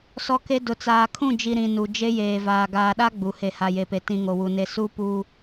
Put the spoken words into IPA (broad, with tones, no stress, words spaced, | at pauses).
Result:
sɔ˦ke˦ dʊ˨t͡saː˨kʰũ˦˨d͡ʒi˨ ɾĩ˨ nu˨d͡ʒe˦jeː˨vaː˨ ɡaː˨ɗa˦ ɡ͡bu˨ he˨ha˨je˨pe˨ tĩ˦ŋo˨wu˨ne˦ su˦ puː˨